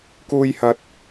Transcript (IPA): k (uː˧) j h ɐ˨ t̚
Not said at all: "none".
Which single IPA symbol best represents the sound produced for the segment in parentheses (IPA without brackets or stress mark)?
uː˧